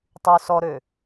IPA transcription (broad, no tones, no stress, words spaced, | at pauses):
tˤy sɔɾø